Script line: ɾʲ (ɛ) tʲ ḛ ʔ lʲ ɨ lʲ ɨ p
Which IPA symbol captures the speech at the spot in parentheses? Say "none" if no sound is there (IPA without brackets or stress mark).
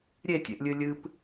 e